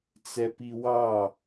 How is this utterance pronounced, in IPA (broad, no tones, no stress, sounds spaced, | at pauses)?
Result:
t͡s ɛ p i w ɑ